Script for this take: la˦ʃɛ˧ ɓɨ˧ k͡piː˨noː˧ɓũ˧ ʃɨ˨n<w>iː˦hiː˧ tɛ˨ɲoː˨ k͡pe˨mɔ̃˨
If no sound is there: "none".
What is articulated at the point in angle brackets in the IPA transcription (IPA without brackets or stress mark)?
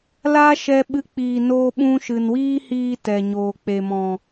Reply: w